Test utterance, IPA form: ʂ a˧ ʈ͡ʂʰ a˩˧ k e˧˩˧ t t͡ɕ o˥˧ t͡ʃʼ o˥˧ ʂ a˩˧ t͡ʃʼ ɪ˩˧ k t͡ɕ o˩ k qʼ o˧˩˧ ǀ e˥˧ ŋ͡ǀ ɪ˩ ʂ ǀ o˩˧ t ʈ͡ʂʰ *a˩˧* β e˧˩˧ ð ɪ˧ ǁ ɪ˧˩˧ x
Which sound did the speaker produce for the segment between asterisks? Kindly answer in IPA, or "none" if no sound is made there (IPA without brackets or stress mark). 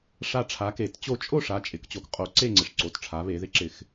a˩˧